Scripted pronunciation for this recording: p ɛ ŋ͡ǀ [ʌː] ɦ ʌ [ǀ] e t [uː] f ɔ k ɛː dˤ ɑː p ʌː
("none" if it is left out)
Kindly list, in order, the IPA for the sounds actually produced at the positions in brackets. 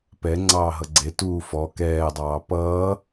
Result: ɑː, ɡ͡ǀ, uː

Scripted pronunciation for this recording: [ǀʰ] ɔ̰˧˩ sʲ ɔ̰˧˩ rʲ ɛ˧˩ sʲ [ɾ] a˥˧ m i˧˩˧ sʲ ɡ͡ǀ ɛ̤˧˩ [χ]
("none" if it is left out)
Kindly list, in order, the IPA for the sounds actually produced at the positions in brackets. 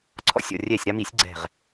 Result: ǀʰ, ɾ, ʁ

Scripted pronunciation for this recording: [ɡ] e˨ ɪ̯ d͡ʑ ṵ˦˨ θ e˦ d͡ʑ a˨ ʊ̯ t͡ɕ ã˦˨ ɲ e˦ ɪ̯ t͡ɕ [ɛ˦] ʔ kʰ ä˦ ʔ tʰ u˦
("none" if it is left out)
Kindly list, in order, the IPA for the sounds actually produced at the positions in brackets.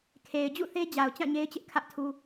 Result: kʰ, ɪ˦

